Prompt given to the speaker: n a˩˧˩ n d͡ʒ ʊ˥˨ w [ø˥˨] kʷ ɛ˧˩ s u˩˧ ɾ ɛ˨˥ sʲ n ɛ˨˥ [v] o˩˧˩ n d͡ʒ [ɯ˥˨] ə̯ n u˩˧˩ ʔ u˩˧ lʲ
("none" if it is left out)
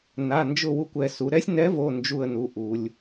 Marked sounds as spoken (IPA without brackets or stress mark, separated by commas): u˥˨, v, u˥˨